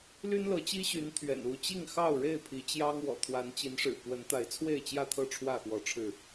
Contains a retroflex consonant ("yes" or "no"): yes